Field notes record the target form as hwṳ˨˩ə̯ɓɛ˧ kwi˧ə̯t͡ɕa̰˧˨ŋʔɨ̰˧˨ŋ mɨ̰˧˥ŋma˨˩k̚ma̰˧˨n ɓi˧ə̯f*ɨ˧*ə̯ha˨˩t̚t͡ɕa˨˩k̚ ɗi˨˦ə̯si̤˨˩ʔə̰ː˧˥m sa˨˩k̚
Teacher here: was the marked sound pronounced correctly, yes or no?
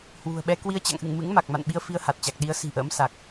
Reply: no